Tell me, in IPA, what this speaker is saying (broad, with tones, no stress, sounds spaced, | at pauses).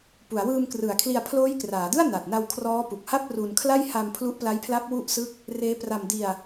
p u˩˦ a̯ w ɯː˧ m k r ɯ˩˦ a̯ kʰ l i˧ a̯ pʰ l oː˦˥ j k r aː˩˦ d ɯ˥˩ a̯ n a˨˩ t̚ n a˧ w kʰ r ɔː˦˥ p u˨˩ k̚ h a˥˩ p̚ r u˧ n kʰ l a˥˩ j h a˧ m pʰ l u˦˥ ʔ p l a˦˥ j pʰ l a˦˥ p̚ w u˥˩ ʔ s ɯ˥˩ k̚ | r eː˦˥ p r a˧ m d i˧ a̯